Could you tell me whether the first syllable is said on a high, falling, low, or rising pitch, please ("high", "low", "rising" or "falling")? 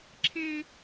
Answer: high